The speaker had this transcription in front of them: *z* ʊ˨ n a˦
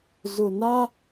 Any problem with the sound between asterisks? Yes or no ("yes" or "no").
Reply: no